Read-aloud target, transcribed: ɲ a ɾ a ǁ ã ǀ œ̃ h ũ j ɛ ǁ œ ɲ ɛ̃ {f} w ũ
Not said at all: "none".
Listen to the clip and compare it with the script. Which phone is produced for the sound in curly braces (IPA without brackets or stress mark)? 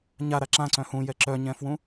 f